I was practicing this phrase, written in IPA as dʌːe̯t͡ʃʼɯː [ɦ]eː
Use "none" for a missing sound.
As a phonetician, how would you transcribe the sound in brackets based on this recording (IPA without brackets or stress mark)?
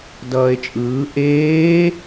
ʔ